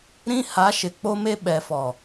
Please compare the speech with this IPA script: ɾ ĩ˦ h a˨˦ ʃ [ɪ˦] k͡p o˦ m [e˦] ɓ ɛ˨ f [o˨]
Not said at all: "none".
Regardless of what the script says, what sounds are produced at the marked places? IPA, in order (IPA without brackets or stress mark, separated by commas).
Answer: ɪ˨, e˦, ɔ˨